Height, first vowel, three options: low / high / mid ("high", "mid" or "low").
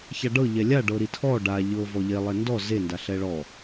low